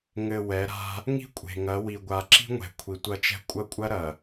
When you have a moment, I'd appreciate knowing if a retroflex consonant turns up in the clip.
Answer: no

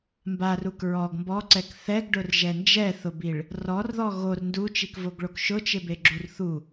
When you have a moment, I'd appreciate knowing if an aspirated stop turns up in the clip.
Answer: no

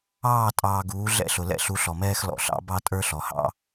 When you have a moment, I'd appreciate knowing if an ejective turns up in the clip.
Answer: yes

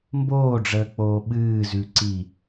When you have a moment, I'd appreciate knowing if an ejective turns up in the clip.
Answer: no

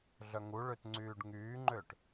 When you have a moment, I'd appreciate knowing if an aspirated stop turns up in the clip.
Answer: no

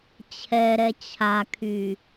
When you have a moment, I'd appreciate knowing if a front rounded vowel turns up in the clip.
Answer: yes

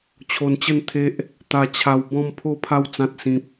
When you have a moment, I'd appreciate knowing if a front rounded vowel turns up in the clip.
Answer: no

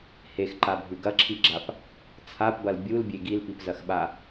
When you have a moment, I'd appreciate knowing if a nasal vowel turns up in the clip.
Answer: no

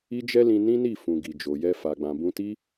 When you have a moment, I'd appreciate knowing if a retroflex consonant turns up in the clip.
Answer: no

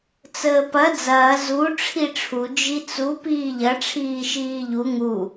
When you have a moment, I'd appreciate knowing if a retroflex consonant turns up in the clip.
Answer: yes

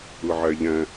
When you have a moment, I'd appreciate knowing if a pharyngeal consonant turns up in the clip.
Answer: yes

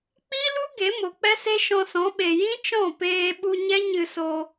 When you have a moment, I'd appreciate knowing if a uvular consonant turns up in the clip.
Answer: no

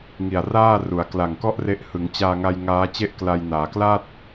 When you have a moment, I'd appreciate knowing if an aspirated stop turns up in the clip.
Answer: no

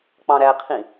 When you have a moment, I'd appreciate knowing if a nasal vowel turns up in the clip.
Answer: yes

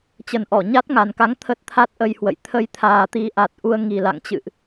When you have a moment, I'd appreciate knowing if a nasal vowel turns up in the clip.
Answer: no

